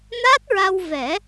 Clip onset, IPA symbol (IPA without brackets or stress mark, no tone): n